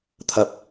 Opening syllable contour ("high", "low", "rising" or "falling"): low